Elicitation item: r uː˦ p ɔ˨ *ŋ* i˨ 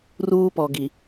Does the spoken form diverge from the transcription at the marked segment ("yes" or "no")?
yes